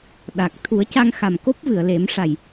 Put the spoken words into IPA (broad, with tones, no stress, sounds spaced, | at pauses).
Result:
ɗ a˨˩ k̚ t̪ʰ u˨˩˦ ə̯ c a˧ ŋ x a˨˩ m k o˦˥ p̚ v ɨ˨˩˨ ə̯ l e˨˩˦ m ʂ a˨˩ j